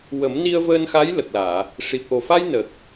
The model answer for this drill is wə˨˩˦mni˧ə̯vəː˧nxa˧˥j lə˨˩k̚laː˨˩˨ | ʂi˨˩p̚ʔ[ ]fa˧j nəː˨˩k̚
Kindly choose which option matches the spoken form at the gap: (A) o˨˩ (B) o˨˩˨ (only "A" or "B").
A